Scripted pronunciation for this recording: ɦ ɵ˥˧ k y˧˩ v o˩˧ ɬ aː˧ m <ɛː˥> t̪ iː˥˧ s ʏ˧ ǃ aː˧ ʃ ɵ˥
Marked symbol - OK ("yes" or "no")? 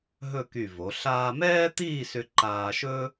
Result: yes